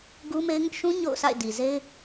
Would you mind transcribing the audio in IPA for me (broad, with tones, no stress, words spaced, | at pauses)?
ɡu˦me˦ɪ̯ŋʊ˦ʔ ʃũ˦ ɲo̰˦˨ʊ̯sʰa̰˦˨ɪ̯ di˨ze˦ɪ̯